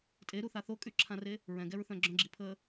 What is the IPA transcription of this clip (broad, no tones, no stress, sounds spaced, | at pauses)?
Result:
tʼ e ɾ u θ a θ o kʼ y ǁʰ ã r e | ɹ ɛ̃ ɡ ɛ ɹ θ œ̃ ɡ͡ǁ œ̃ ɡ͡ǁ i pʰ əː